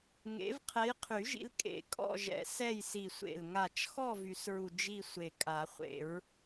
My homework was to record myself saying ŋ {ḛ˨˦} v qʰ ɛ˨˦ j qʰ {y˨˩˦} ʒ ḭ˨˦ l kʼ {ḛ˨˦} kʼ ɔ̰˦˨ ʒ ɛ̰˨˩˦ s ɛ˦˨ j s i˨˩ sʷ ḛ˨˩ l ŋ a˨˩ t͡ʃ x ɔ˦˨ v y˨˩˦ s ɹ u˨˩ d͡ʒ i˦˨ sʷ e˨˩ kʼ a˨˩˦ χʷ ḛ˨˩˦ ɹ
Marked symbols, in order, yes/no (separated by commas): yes, yes, no